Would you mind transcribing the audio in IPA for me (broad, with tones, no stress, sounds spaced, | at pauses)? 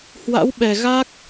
h w a̰˧˥ w ɓ ɛ˨˩ ɣ a˦˥ k̚